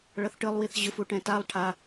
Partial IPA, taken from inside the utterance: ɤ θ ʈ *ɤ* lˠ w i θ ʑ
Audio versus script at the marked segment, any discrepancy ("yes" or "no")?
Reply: yes